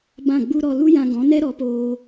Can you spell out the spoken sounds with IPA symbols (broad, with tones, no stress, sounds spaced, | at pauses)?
b ã˦˨ ɡ͡b u˦ ɾ ɔ˧ l u˦ j ã˧ ɡ ɔ̃˨˦ n ɛ˦ ɾ ɔ˨˦ p oː˧